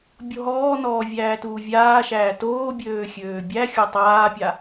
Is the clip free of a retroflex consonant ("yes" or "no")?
yes